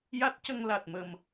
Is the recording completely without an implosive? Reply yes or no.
yes